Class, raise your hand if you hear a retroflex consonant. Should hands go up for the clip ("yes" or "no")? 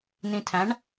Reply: yes